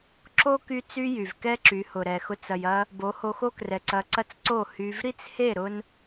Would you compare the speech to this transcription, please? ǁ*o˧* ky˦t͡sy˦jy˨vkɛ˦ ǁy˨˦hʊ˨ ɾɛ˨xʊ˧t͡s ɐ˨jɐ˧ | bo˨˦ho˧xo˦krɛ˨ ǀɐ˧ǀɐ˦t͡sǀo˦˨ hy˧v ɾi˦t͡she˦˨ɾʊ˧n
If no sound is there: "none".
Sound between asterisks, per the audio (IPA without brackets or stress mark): o˦